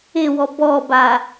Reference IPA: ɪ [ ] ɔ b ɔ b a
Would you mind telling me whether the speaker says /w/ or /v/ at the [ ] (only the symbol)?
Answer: w